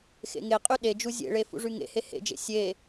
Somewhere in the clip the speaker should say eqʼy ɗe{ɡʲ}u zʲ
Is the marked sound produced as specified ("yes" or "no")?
no